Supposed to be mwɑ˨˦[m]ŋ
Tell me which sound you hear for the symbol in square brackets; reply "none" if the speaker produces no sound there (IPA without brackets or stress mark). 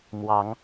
none